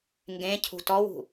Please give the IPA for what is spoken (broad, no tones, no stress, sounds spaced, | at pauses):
ŋ ɡ ẽ cʰ ṳ t ɔ w ṳ